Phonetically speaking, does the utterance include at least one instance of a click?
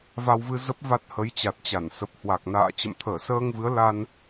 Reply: no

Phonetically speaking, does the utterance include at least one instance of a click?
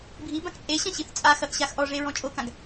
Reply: no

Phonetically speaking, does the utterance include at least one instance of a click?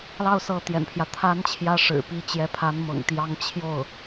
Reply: no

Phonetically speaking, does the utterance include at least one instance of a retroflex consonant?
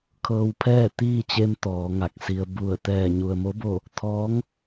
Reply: no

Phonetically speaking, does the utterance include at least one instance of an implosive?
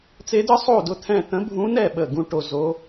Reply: yes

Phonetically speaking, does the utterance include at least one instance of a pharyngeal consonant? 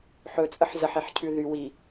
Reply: yes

